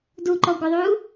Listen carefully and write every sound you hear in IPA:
d u ǃ ɔ ɡʷ ɪ ðˤ u

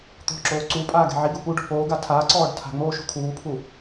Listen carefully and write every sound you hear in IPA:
t̪ ɔ̤ ǁ oː ǀ u pʼ aː ɡ ɛ̤ ʕ i ɡ u p u ɖ ɔ̤ p oː ɡ a tʰ aː ǀ ɔː ɖ tʰ a̤ ŋ͡m oː ʃ ṳ kʰ uː pʰ u

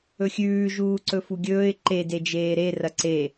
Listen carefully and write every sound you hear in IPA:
ɵ xʲ ʉː ʒ uː ǀ ɵ f u ɡʲ ɵː ɪ̯ ǃ e d e d͡ʒ eː ɾ e r ɐ ǀ e

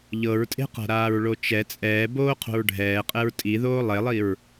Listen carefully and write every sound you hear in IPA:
ʎ ɤ ɹ tʼ e̤ q a̤ ɾ aː ɹ ɭ o t͡ʃ ɛ t͡sʼ ɛː b oː qʰ o̤ ɹ ɖʱ ɛː qʼ ɛ ɹ tʼ i ð oː lˠ e lˠ i ɹ

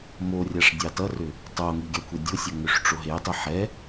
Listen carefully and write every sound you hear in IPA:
m o rʲ a ʂ dʲ ɑ t ʌ r ʏ | tˤ o ŋ i ɡʲ ɑ kʷʰ ɛ dʲ o sʲ ʌ ŋ ʏ ʂ ʈ͡ʂ o ɦ e tˤ i ħ ɛ

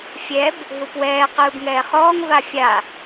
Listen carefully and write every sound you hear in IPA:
fʲ ɛ b | ɦ u p w ɛː q ɯː b ŋ ɛː χ ɔː ŋ v a fʲ a

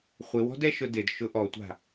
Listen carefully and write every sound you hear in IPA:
χʷ ɪ w ɔ̤ d ɛ ʃ ʊ d ɪ d ʃ ʊ ʔ ɔ tʷ a̤

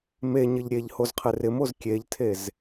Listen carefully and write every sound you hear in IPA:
m e ɲ ɪ ʎ ɾʲ e ʎ h o z qʰ ɪ r ɪ m o z kʲ e ʎ tʰ e z

